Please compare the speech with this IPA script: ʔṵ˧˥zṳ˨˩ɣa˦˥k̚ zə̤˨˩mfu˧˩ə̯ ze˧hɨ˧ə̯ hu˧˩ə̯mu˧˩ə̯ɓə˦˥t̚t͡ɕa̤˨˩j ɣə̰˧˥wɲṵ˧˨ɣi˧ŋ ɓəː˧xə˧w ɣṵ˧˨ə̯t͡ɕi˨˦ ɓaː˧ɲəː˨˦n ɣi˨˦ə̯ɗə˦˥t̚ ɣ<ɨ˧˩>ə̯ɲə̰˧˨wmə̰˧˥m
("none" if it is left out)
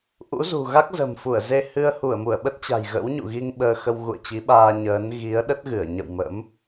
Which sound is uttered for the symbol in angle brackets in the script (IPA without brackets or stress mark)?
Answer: ɨ˧˩